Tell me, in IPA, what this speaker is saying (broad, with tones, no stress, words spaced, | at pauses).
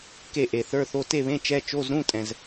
ke˥˨ʔe˨˩θə˞˧˥˧θo˧˥˧ te˥˨βẽ˧˥˧ t͡ʃɛ˧˥˧ t͡ʃo˧˥˧zɾũ˧˥˧tʼɛ̃˨˩z